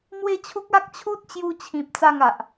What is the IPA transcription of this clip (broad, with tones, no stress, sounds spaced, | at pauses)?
m w e˦ t͡ɕʰ u˦ k̚ a˦ k̚ t͡ɕʰ u˦ t̚ t͡ɕ j u˧ t͡ɕʰ ĩ˨ p̚ t͡s a˥˧ ŋ a˨ ʔ